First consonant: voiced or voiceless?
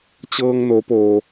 voiceless